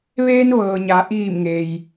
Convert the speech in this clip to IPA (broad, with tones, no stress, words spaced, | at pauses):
ʋeː˧nʋɤː˩ɲa˩ʔiː˧˩m ŋe˩j